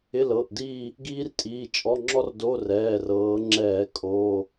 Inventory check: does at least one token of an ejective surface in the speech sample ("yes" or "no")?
yes